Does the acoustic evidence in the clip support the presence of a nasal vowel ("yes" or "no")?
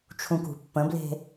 yes